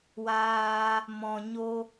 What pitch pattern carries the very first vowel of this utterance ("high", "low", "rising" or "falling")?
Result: high